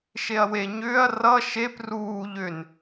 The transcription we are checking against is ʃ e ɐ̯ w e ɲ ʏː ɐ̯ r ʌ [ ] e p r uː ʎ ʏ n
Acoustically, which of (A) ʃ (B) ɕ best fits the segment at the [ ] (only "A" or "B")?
A